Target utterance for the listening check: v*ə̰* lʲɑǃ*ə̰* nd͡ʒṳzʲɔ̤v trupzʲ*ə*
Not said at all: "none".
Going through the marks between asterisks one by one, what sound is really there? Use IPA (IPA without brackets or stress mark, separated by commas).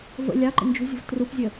ə̰, ə̰, ə